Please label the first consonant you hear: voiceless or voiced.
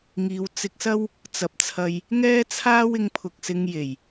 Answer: voiced